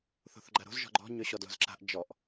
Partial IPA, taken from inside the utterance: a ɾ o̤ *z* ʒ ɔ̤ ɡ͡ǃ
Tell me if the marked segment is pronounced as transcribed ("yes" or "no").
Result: yes